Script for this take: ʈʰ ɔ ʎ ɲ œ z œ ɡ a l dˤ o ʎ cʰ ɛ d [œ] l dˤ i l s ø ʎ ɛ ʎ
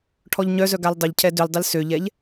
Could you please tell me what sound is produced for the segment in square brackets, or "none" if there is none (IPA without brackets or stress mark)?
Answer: ø